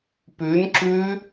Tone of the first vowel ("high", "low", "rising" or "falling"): rising